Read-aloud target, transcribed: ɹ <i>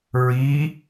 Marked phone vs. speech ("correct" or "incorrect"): correct